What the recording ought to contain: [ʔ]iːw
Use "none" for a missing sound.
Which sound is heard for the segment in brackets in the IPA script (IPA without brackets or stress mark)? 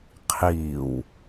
qʰ